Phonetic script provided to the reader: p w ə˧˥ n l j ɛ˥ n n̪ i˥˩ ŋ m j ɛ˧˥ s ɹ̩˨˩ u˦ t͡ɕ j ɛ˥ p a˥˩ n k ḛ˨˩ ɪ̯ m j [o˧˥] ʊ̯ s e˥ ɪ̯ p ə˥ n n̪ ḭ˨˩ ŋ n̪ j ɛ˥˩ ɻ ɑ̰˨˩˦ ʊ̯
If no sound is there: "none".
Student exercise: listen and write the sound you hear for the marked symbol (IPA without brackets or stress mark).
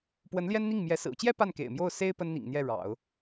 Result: o˥˩